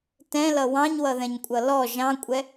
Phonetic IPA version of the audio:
t ɛ̃ l ʌ w ɑ̃ ɲ w ʌ ð ɛ̃ ɲ kʷʼ ʌ l ɔ ʒ ɑ̃ kʷʼ ɛ

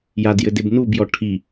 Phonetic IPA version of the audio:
j a d j ɘ d e b n u b j ɔ ʈʰ i

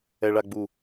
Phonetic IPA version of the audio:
ɛ ɭ a ɡ͡b u

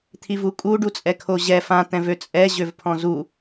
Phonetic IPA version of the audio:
t̪ʰ i v u kʼ u ɖ u t͡sʼ ɛ kʰ o ʑ ɛ f ã t̪ ɛ̃ v ø t͡sʼ ɛ ʑ ø v pʰ ɔ̃ z u

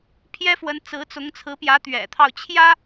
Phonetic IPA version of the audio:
pʰ j ɛ˥ f w ə˧˥ n t͡s ɹ̩˧˥ t͡s ʊ˧˥ ŋ t͡sʰ ɹ̩˧˥ p j ä˧˥ t̪ ɥ ɛ̰˨˩ t̪ʰ ɑ˥˩ ʊ̯ t͡ɕʰ j ä˥

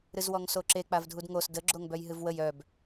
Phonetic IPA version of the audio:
ɾ ɨ z w ɔ ŋ s o ǁ e k͡p a v dʱ u d ŋ o s d ə ɡ͡ǁ o ŋ b œ j ɦ ɨ v w ə j œ b

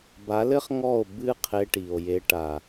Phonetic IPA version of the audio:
b a˨˦ l ɘ˦ χ ŋ ɔ˦˨ o̯ b ɨ˦ qʰ e˧ ʈ i˨ o̯ j e˧ ʈ a˨

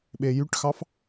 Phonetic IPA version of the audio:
ɓ e j y ʈ x ɑ f

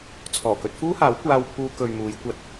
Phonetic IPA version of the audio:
t͡sʰ ɔː˨˩ k ɵ˧ t̚ f uː˥ h aː˨˥ w kʷ aː˧ w pʰ uː˧ k ɵ˨ ɥ m uː˨˧ j kʷ ɐ˧ t̚

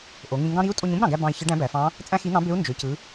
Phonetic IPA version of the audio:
ʔ o˩˧ ŋ ĩ˧ ŋ ɡ ɑ̃˥ ɾ i˧˥ u̯ tʼ o˧ ɲ ũ˥ b ɾ ɑ̃˩ ɡ æ˧ b ɑ̃˧ i̯ ç ɯ˧˥ ɖ æ̃˧˥ b æ˩˧ f ɑ̃˧˥ | t͡sʼ æ̃˥ x i˧˥ n̪ ɑ̃˧˥ b ø˧˥ u̯ n d͡ʒ ø˩˧ c ɯ˩˧

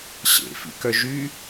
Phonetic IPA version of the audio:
ɕ ḛ f ḭ k œ ʒ y

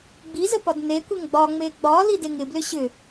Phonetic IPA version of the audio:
ɡ͡b i z ə p ɒ d n e kʷ e ŋ ɡ͡b ɒ ŋ͡m e ɡ͡b ɒ l i d e ŋ ɪ b l ʏ ɕ ʏ

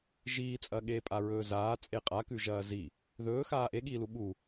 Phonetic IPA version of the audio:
ʒ iː t͡sʼ ɐ ɠ eː pʼ a ɹ ɵː z aː t͡sʼ e qʼ a k ʉ ʒ ɐː z i | ð ɵː x aː ʔ e ɠ iː l u ɓ u

